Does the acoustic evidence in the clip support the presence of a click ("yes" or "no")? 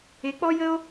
no